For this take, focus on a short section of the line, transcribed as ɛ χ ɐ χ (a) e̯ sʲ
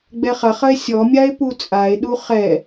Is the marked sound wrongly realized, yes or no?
yes